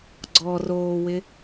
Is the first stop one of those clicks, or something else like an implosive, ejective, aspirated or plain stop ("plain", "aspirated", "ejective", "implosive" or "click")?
click